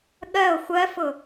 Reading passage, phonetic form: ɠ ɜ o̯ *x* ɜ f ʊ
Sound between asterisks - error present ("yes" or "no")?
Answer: yes